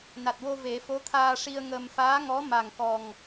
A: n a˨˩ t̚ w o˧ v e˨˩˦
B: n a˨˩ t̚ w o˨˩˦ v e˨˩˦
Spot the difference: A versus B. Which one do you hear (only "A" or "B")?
A